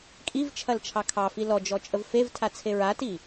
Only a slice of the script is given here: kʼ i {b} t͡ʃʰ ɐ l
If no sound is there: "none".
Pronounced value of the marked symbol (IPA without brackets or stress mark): v